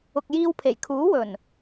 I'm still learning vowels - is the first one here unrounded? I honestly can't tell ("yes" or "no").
no